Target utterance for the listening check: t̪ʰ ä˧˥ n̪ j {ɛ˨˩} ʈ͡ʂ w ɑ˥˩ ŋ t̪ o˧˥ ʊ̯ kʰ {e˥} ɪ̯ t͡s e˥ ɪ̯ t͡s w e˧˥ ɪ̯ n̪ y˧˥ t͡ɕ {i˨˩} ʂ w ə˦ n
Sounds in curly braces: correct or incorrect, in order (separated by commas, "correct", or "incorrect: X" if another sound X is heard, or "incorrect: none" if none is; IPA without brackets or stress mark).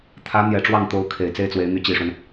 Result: correct, incorrect: e˨˩, correct